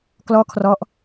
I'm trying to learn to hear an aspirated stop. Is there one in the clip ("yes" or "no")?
yes